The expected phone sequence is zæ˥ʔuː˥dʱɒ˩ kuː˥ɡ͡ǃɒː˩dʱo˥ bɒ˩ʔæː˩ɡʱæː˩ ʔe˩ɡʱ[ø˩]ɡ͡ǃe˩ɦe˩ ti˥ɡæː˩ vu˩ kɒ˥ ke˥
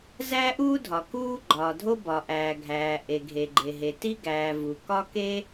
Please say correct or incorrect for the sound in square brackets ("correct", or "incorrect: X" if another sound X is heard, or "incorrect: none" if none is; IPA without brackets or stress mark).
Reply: incorrect: e˩